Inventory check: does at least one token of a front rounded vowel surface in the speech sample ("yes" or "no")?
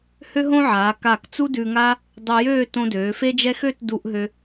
yes